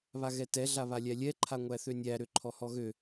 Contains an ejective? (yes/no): no